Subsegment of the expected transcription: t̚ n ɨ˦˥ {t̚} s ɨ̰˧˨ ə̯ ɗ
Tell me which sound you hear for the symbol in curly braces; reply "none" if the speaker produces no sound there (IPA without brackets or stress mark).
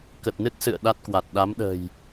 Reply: t̚